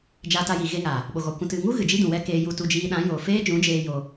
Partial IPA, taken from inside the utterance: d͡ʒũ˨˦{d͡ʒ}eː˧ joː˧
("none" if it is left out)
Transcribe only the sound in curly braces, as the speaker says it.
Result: d͡ʒ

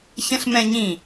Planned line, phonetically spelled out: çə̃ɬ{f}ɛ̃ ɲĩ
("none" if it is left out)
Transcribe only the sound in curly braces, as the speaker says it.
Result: m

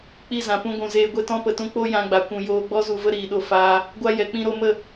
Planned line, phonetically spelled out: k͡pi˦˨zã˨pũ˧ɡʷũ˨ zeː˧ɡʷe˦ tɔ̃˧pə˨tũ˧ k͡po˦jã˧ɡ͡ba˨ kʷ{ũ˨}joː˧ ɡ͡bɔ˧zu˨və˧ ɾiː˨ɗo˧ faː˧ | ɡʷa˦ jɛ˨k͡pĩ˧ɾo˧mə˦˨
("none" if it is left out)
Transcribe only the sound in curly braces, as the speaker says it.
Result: ũ˨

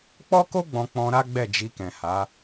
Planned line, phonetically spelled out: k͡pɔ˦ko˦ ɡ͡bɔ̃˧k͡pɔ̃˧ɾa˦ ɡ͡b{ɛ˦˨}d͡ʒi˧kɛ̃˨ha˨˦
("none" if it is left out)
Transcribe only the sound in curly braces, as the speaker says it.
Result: ɛ˦˨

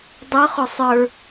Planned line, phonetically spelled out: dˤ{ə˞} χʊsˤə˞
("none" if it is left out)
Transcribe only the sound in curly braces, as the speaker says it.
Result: ʌ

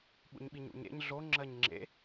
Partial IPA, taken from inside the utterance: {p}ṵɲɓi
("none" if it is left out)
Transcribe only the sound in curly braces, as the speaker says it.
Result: ɓ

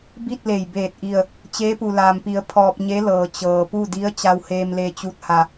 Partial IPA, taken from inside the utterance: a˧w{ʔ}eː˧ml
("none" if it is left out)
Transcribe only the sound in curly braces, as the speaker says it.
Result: h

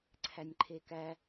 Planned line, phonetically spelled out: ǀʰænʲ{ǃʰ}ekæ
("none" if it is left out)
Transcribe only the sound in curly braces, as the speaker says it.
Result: ǃʰ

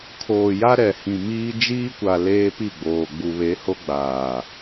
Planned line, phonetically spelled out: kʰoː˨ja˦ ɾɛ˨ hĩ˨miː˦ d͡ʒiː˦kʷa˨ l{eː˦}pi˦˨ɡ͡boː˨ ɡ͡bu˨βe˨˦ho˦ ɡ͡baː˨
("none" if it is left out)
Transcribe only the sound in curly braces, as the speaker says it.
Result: eː˦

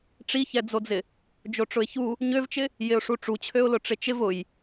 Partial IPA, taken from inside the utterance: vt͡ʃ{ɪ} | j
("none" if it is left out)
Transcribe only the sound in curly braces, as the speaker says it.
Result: ɪ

